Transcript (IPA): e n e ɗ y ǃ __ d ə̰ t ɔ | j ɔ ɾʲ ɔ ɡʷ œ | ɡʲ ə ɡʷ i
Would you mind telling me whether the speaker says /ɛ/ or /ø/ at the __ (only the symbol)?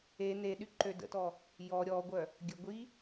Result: ø